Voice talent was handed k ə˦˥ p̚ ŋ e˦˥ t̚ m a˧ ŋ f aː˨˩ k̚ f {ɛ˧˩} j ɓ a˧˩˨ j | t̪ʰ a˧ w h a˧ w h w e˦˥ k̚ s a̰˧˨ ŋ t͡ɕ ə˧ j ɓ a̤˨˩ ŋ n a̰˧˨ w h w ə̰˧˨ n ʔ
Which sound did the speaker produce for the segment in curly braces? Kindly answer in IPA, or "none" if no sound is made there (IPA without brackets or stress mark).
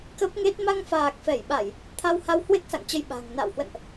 ɛ˧˩